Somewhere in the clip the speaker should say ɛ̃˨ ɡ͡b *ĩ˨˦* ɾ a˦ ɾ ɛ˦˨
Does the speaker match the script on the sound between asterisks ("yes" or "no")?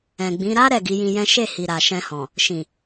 yes